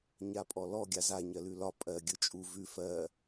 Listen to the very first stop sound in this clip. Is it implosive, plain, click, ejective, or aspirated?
ejective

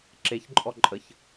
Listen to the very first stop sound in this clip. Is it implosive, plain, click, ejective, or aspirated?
click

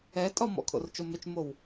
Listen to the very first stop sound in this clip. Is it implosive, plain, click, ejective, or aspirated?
ejective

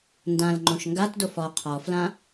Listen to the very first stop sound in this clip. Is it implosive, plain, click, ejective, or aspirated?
plain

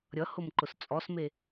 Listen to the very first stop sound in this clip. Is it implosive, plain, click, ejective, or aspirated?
click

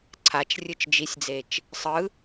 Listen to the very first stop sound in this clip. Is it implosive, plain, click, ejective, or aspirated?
click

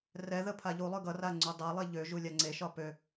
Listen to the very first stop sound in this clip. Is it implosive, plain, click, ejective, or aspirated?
aspirated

